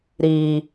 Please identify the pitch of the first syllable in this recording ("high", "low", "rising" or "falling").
low